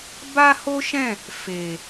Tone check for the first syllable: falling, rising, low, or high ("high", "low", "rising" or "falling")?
high